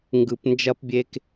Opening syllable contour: low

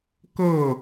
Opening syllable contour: falling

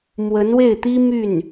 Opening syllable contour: rising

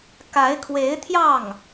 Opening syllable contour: rising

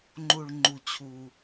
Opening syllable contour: low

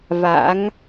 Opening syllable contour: rising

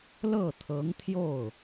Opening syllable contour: falling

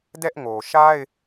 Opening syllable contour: high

